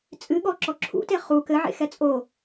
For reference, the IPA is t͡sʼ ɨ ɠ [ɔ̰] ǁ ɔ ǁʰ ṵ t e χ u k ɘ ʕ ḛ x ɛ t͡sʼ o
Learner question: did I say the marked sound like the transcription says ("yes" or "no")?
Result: no